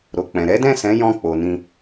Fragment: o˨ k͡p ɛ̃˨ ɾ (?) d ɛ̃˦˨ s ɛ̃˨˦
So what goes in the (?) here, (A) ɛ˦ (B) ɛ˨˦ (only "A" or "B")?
B